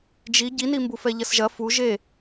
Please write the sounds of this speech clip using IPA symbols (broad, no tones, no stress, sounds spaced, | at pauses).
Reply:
d͡ʒ i ɟ i n i m b u f ɛ ʎ ɐ s ʒ ɐ f u ʒ e